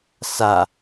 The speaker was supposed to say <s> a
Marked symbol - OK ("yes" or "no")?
yes